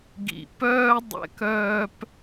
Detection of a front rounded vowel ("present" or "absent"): present